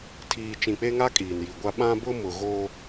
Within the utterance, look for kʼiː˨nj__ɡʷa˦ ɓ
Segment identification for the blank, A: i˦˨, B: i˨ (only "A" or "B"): B